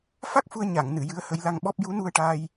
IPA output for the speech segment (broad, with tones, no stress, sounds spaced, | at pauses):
f a˦˥ k̚ f u˧ ə̯ ɲ a˨˩˨ ŋ n ɨ˨˩˨ j ɨ˧˥ ə̯ h ə˧˥ j l a˧ ŋ ɓ ɔ˦˥ p̚ j u˧˥ n u˧ ə̯ ʈ aː˧ j